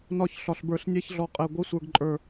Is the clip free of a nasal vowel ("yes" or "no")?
yes